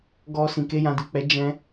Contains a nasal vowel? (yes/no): yes